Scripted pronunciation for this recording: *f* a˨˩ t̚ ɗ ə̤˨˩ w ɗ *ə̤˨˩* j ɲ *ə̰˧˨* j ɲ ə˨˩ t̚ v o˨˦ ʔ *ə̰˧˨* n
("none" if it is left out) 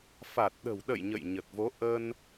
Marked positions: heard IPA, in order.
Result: f, ə̰˧˨, ə̰˧˨, ə˧

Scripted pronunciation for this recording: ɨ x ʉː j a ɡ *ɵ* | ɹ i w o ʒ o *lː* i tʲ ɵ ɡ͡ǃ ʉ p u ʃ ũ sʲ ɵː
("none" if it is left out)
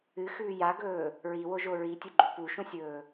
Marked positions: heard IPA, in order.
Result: ɵː, ɹ

